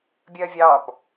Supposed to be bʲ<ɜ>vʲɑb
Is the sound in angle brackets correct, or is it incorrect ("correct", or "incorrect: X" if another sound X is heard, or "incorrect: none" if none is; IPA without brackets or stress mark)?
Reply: correct